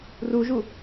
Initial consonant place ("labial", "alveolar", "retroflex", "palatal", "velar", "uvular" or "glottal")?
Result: alveolar